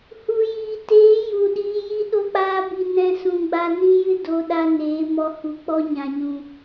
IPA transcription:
hu˨jiː˨teː˨˦ ju˨ɗiː˧ji˦ ɗo˦k͡paː˦bi˧ nɛ̃˧sũ˨ɡ͡ba˧ nĩ˦jɨ˦doː˨ɗa˧ neː˨˦mɔ˧hu˨k͡pɔ˦ ɲã˨ɲũ˨

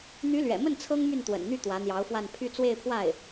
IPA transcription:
n̪y˧˥lɥɛ̰˨˩mə˥˩n t͡sʰɤ˥ŋmy˥˩nt̪wə̰˨˩nn̪y˥˩ t̪wä˧˥n̪jɑ˧˥ʊ̯fwa˥˧n pʰy˥˧ t͡swe˥˧ɪ̯pʰwa˥˩ɪ̯

